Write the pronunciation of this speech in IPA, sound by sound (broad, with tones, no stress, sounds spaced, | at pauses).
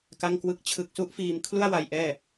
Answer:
k a˥˩ ŋ k w ɯ˥˩ k̚ t͡ɕʰ ɯ˨˩ k̚ s u˦˥ ʔ f iː˧ m kʰ l u˥˩ a̯ w a˧ j ʔ ɛː˥˩